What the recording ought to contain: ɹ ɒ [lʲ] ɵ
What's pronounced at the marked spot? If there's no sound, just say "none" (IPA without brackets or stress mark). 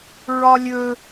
lʲ